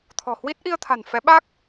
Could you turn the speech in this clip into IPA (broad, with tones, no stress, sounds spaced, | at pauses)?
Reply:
t̪ʰ ɔ̤˨˩ h w i˦˥ t̚ ʔ i˧ ə̯ t̪ʰ a̤˨˩ n f ɛ˨˦ ɓ aː˦˥ k̚